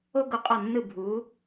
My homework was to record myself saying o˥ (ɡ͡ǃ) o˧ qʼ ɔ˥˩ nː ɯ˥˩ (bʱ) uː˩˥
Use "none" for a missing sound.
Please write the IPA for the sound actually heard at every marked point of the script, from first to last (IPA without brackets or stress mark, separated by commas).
ɡ, bʱ